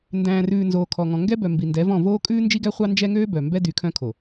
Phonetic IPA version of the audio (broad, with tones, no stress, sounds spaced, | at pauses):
n d æ̃ː˨ r ʉː˨ n z oː˨ kʰ ɔ˨ ŋ ɔ̃˨ ŋ ɡ ɛ˦ b œ˨ m b i˨ n d ɛ˨˦ v ɔ̃˦˨ v oː˦ kʼ ʉː˦ n d͡ʒ i˦ ɡ æ˦ χʷ ɑ˦ n d͡ʒ ɛ˦ ŋ øː˦ b œ˨ m b ɛ˦ d y˨˦ kʰ œ̃˦ kʰ o˨